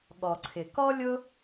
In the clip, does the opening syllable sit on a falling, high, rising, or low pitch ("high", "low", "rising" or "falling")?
low